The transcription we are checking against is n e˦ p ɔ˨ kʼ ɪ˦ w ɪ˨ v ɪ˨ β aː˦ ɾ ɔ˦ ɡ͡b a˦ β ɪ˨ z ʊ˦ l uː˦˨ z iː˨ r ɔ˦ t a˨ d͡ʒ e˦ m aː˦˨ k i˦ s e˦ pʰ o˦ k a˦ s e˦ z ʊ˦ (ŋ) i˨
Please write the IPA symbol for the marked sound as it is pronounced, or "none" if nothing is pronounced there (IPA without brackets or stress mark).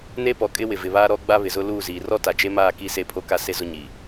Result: ɲ